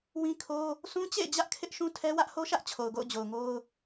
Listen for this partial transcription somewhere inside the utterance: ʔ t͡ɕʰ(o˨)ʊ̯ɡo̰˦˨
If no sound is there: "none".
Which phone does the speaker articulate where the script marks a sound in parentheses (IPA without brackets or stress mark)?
o˨